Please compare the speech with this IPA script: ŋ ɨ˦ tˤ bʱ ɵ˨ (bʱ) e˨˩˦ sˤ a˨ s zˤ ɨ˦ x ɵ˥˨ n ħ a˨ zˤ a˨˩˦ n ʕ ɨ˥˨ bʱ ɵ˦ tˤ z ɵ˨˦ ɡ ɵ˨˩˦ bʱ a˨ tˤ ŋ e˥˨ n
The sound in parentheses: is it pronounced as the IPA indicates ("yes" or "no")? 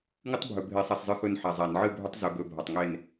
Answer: yes